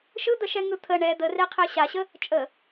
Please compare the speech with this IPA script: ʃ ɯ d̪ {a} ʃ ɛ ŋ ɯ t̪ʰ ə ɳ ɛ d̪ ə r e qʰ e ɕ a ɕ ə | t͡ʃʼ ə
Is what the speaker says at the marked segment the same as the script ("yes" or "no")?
no